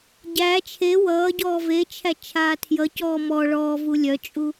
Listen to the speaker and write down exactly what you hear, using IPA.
ɟ æ t͡ʃʰ e w ʌː ɟ ɔː v e t͡ʃʰ æ t͡ʃʰ aː tʰ j ʌ c ɔː m ɔ ɭ ɔː v u lʲ œ t͡ʃʼ u

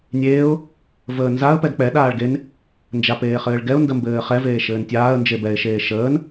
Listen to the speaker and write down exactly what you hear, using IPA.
nʲ eː ʊ̯ | v əː n z a ə̯ p ɛ d k͡p ɛ ɗ aː ɭ ɡ e n | n d͡ʒ a p eː χ ɘː ɭ ɡ ɛ ʊ̯ n d ə m b ɘː χ ɛ v eː ʃ ɘː n tʲ aː ə̯ n d͡ʒ e b ɛ ɪ̯ ʃ eː ʃ əː n

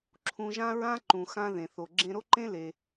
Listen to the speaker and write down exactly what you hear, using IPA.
ǁʰ ũ˧ ʒ ã˥ ɹ ã˥ ǃ ũ˩ x ã˧ ð ẽ˩ θ o˩ ɡ͡ǁ ẽ˧ ɾ o˥ ǃ ẽ˥ l e˩

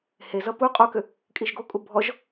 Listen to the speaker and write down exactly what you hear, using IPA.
h e z ʌ p u qʼ u k ʏ | kʼ i ʒ ɡ o kʼ u bʱ ɔ ʒ

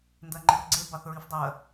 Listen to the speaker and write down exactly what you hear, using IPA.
n d ɜ ŋ͡ǃ e r ɡ͡ǀ e b ɑ θ ɹ i f dˤ ɜ

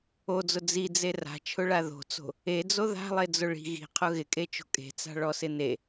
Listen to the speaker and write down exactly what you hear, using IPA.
o d͡z ʊ d͡z i d͡z e r a̤ t͡ʃʰ ʊ ɭ a ð o̤ t͡s o̤ | e d͡z o ð a̤ lˠ e d͡z ʊ ɭ i̤ ɣ i̤ qʰ ʊ ɣ ɪ kʼ e t͡ʃ o̤ kʼ e̤ t͡s a̤ ɭ ɔ s ɪ n e

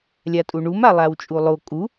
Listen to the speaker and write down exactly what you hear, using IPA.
lʲ a tʼ u ɳ u m a lˠ a w t͡ʃʼ u lˠ o kʼ u

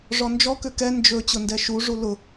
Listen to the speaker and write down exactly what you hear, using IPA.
ʐ ɔ n d͡ʒ ɔ k ʏ k ɛ n d͡ʒ ɵ t͡ɕ ʊ n d ɛ ʃ u ʐ u l ʊ

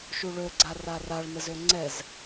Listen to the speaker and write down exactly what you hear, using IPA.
ʃ u ɭ ø ɡ͡ǀ a r a r a ɭ n ə z ø ŋ͡ǀ ɛ z

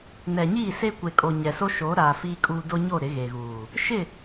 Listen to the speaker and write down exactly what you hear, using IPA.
n ɛ˨ ɲ iː˦˨ s e˦ kʷ e˨ kʼ o˨ ɲ ɛ˨ s o˦ ʃ oː˨˦ ɾ aː˨ f iː˦ kʼ uː˦ d o˦ ɲ o˦˨ ɾ ɪ˨˦ ɣ e˨ ɣ uː˨ | ʃ ɪ˦˨

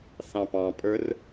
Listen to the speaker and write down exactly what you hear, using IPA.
θ ɑ̃ p ɑ̃ pʼ ə˞ r

